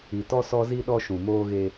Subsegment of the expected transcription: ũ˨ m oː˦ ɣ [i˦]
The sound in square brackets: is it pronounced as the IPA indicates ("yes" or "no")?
no